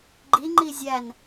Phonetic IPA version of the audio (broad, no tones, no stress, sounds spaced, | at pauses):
ɡ͡ǃ i ŋ͡ǃ i zʲ æ n